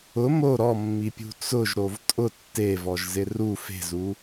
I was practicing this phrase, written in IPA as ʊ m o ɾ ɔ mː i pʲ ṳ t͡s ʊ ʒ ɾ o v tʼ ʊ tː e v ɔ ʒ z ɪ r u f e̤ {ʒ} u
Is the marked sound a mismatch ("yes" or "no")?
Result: yes